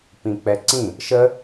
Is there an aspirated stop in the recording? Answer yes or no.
no